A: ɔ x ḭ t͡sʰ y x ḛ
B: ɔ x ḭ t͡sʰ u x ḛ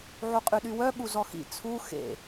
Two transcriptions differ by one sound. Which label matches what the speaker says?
B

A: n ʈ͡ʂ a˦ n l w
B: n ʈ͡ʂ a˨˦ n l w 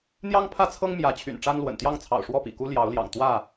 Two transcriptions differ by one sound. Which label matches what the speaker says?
A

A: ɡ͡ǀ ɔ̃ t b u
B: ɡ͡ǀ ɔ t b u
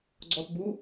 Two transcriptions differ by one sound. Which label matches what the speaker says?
B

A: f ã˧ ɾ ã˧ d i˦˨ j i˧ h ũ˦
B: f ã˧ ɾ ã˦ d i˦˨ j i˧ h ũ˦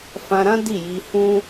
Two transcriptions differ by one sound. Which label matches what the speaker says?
B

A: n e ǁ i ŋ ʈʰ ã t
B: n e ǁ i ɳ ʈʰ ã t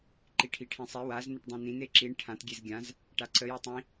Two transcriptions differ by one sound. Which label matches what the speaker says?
B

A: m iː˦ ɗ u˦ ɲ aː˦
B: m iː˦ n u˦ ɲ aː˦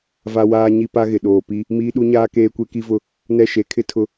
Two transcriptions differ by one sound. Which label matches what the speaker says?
A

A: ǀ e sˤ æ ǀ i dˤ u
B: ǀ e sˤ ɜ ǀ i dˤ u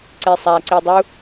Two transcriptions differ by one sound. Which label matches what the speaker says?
A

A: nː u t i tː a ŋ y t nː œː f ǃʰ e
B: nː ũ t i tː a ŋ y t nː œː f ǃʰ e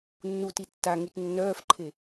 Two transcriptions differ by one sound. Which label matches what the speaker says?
A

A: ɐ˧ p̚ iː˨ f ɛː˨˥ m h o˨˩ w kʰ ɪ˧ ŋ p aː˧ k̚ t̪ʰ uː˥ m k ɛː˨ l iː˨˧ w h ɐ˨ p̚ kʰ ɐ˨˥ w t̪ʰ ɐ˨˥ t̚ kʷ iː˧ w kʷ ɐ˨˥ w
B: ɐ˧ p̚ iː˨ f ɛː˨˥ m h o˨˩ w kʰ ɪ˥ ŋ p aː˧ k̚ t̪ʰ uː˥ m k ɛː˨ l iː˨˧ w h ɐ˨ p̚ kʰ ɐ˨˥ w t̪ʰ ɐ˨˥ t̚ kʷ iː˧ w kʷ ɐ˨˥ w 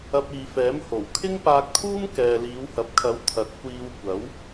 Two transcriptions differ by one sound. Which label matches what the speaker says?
B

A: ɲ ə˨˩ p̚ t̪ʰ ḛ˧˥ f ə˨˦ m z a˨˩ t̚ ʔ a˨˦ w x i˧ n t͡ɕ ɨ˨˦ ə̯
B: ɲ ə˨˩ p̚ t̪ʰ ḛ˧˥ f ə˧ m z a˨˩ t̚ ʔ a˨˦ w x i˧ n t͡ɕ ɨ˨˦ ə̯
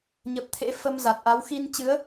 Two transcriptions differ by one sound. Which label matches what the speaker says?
B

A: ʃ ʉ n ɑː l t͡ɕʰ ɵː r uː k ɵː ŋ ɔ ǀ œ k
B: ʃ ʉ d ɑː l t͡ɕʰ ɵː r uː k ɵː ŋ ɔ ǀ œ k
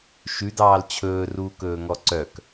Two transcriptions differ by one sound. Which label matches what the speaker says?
B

